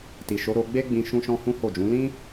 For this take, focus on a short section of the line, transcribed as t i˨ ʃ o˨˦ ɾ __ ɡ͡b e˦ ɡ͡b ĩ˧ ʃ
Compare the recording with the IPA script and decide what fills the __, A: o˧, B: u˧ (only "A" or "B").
A